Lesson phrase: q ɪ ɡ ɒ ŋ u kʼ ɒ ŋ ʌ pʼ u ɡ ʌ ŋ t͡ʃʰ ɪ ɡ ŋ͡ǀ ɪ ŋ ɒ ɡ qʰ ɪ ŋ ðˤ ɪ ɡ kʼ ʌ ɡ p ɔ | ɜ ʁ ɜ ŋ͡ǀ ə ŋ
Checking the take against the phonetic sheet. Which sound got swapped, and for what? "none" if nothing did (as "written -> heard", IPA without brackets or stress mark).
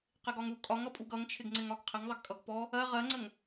none